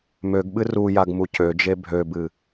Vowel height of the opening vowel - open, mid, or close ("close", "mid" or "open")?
mid